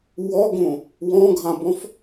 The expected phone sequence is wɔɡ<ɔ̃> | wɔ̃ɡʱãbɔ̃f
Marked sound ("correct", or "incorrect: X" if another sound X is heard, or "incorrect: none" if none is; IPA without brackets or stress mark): incorrect: õ